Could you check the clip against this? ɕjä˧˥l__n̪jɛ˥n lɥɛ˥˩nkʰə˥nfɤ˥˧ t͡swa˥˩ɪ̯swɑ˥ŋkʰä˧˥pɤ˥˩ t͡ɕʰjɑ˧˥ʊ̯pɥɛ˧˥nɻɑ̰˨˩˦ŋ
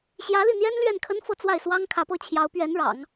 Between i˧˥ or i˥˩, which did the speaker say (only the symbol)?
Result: i˥˩